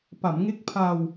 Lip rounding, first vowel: unrounded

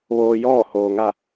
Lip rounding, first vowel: rounded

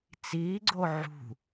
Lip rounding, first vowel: unrounded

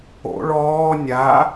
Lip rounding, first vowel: rounded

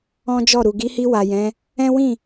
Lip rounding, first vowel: rounded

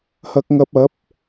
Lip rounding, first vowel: unrounded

